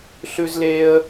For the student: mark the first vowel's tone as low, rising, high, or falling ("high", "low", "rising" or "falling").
high